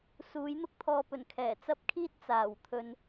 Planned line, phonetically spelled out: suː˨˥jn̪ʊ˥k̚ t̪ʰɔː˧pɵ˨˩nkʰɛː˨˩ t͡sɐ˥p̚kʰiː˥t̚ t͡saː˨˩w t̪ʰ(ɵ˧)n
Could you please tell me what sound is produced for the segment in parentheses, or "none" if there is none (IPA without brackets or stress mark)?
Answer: ɵ˧